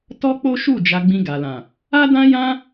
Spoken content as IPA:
t ɔ˦ k͡p o˦ ʃ u˦˨ d͡ʒ a˧ ɡ͡b ĩ˧ ɡ a˨ l ã˨ | a˦ d ã˦ j ã˦

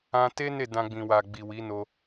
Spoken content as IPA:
ã˧ t e˦ n e˦˨ d ã˧ ɡ͡b ĩ˨ w a˨ ɡ͡b i˨ w i˨˦ n o˧

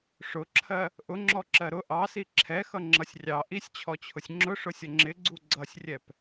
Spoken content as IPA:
ʂ ʊ ǁʰ ɜ | ʔ ʊ ŋ͡ǁ ɔ ǁ ɜ ɾ ʊ ʔ ɑ s i ǁʰ ɛ x ʌ ŋ͡ǁ ʌ sʲ rʲ ɑ ʔ i sʲ t͡ɕʰ ɔ t͡ɕʰ ʊ sʲ ŋ͡ǁ ʊ ʂ ʊ sʲ ʌ ŋ͡ǁ ɪ ɡ͡ǀ u ɡ͡ǀ ʌ sʲ rʲ ɛ p

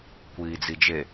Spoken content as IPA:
kʷ iː d͡z i d͡ʒ e

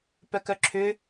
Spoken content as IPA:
p œ k œ ǁʰ ʏ

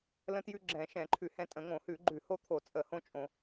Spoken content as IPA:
l ə̃˦ t j ʉ˦ ɡ͡ǁ ɛ̃˧˩˧ ʃ ɛ̃˧˩˧ ǃʰ ʉ˧˩˧ h ɛ̃˦ tʼ ə̃˧˩˧ ŋ õ˧˩˧ h ʉ˧˩˧ ɡ͡ǃ ʉ˧˩˧ h o˦ t̪ʰ o˧˩˧ t͡sʼ ə˧˩˧ h õ˦ t͡ʃʼ õ˧˩˧

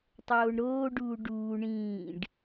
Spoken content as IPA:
tˤ oː ɳ ɾ oː ɖ uː ɖ uː ɳ ĩː ɖ

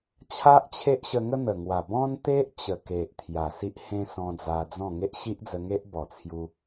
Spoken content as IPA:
t͡ɕʰ a˦ ʔ t͡ɕʰ e˦ ʔ ɕ ə˧ ŋ ə˦ n̪ ə˨˩ ŋ w a˨˩ b ɔ̃˦ n t̪ e˦ ʔ t͡ɕ ə˨˩ k e˨ ʔ t̪ʰ j a˨˩ s i˦ ʔ h ẽ˦ s ɔ̃˧ d͡z a˧ d͡z ɔ̃˥˧ ŋ e˦ ʔ ɕ i˦ ʔ d͡z ə˧ ŋ e˦ ʔ b ɔ˨˩ t͡sʰ j u˧

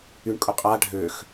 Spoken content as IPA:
y ɳ kʼ ʊ qʼ a ɖʱ ø x

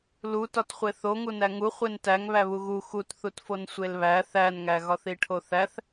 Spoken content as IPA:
l u t ɒ t χʷ e θ o ŋ u n æ ŋ u χʷ e n t æ ŋ β æ β u ɣ u x u t θ u t f o n sʷ e l β æ θ æ n ŋ æ ɣ ɒ θ i ʈʰ o θ æ θ

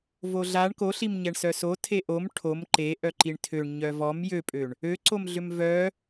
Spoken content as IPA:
v o ɮ a ɳ k o ɬ i m ɲ ɛ ɳ s œ s o tʰ e ʔ o m ʈʰ o m ǃ e ʔ œ ǃ i ɳ tʰ ø ɳ ɲ œ v ɔ m j ø pʼ ø ɳ | ø ǀ o m ɮ ʏ m v œ

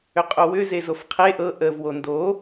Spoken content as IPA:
ʏ qʼ o w ʏ z e z o f qʰ e ʔ ɤ ʔ ə v w o n d o

